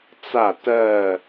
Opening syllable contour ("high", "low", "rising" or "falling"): falling